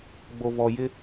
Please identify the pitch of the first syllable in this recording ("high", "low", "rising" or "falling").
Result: low